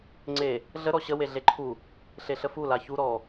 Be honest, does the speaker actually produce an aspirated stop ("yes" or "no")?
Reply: yes